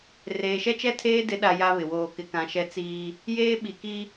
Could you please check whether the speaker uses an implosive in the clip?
yes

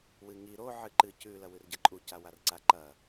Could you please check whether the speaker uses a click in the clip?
yes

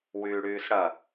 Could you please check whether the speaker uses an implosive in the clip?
no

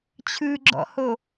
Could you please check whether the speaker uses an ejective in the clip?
no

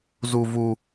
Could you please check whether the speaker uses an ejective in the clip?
no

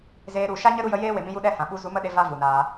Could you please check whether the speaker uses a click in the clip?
no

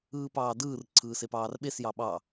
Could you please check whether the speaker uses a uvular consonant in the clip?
no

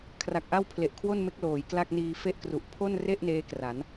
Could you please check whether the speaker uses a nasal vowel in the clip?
no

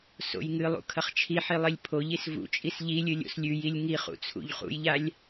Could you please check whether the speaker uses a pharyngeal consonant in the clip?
yes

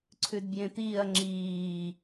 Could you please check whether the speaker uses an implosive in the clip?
no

